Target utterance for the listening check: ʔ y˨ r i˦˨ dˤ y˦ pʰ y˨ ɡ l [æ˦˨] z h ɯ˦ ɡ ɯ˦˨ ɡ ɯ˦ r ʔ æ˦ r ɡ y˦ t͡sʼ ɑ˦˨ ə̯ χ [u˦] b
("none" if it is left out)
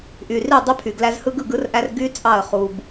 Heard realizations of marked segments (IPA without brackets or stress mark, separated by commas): æ˦, u˦